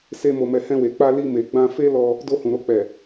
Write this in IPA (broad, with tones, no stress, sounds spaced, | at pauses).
s e˦ m o˧ m ɛ˧ h ɛ̃˧ w e˨ k͡p a˧ l i˧ m e˨ ɡ͡b ã˧ f e˦ l ɔ˧ | d o˧ h ũ˨ ɾ o˧ k͡p ɛ˨